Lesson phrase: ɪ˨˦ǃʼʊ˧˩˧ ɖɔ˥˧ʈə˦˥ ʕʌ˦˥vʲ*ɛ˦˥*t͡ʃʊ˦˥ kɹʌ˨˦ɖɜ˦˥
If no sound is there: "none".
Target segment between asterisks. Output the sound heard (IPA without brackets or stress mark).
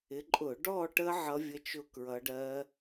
ə˦˥